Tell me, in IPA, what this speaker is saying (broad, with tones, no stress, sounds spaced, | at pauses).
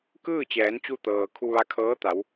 k ɯː˥˨ t͡ɕ ɛː˩˧ n t͡ɕ u˧ t̪ ɤː˩ kʰ u˧ ʋ a˧ kʰ ɤː˧˥ t̪ a˩˧ w